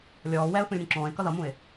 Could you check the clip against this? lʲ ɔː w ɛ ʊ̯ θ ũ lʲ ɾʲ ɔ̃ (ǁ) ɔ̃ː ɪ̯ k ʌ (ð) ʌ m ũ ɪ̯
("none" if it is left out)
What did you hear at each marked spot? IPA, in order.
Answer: ǁ, ð

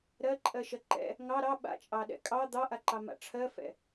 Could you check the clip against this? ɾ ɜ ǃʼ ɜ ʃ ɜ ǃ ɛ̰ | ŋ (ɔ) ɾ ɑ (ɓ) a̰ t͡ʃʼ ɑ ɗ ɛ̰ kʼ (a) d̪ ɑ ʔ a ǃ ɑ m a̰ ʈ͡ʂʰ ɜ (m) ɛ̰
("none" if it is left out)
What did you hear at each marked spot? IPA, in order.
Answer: ɑ, ɓ, ɑ, f

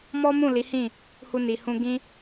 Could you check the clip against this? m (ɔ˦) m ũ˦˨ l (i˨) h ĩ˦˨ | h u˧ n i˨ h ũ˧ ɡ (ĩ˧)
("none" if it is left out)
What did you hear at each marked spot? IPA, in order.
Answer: ɔ˦, i˨˦, ĩ˦

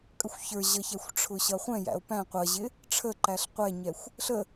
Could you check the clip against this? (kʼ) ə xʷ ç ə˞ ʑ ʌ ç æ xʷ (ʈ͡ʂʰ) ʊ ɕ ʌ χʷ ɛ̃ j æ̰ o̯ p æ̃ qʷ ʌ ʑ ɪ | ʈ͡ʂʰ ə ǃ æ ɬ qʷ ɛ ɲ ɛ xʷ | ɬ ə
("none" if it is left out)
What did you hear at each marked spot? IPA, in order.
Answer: kʼ, ʈ͡ʂʰ

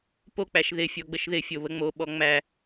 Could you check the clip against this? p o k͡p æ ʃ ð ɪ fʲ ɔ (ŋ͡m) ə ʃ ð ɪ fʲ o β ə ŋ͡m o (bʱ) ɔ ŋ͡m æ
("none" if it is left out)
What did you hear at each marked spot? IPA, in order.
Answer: ɡ͡b, ɓ

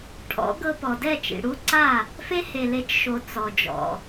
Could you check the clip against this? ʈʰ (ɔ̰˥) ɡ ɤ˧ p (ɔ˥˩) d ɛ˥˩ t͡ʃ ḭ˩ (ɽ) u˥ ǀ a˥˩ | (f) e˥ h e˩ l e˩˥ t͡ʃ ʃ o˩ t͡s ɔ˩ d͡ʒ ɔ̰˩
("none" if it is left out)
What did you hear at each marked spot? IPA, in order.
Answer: ɔ̰˩˥, ɔ˩, ɽ, f

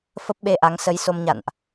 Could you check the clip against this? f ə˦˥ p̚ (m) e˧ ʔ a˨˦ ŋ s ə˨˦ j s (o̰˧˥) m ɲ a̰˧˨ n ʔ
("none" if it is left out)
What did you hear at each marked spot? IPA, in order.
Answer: ɓ, o˧

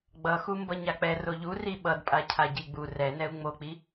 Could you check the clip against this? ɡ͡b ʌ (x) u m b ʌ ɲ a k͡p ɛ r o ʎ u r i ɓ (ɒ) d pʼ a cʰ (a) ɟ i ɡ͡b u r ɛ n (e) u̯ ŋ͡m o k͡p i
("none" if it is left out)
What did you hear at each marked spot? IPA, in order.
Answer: x, ʌ, a, ɛ

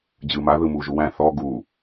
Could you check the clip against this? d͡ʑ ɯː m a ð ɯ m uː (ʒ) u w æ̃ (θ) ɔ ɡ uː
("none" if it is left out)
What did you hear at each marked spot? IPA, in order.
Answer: ʒ, θ

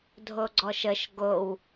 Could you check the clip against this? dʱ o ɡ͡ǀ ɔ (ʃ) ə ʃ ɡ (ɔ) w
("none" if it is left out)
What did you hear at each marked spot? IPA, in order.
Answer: ʃ, o

